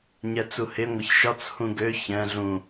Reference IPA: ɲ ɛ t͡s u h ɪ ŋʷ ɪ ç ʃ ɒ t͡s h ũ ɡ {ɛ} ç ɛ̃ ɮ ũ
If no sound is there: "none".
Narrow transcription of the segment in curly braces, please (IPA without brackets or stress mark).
ø